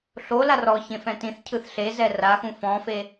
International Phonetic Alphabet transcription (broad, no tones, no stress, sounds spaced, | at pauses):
ɬ o l a r ɔ ç ẽ f ɛ̃ t ĩ θ cʰ ɯ θ ɬ e z ɛ r a x ũ f ɔ̃ f e